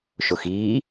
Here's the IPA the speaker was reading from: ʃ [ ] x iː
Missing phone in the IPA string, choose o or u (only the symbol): o